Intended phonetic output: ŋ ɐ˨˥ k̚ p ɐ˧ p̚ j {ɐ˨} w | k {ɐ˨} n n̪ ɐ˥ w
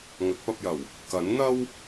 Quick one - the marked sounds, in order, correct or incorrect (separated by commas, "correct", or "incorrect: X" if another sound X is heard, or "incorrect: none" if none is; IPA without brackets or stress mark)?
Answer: incorrect: ɐ˨˩, incorrect: ɐ˨˥